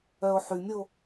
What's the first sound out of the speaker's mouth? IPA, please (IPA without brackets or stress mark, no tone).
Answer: œ